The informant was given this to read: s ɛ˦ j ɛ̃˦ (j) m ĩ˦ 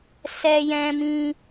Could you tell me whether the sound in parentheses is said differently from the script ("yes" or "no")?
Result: yes